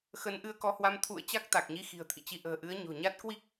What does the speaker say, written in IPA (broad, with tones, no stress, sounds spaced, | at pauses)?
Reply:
x ə˨˦ n ʔ ɨ˧ ə̯ k ɔ˨˦ h w a˧ m t̪ʰ ṵ˧˨ ə̯ t͡ɕ a˦˥ k̚ t̪ a˨˩ k̚ ɲ i˨˦ x i̤˨˩ ə̯ t̪ʰ ḭ˧˨ t͡ɕ i˨˦ ʔ ə̤ː˨˩ ʔ ɨ˨˦ ə̯ ɲ o̤˨˩ ɲ a˦˥ t̚ k w i˦˥ k̚